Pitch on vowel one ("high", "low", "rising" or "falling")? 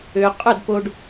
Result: low